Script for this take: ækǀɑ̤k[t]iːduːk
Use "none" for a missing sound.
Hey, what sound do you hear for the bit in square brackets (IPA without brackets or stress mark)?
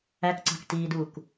t